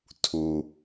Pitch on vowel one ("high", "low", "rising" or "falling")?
low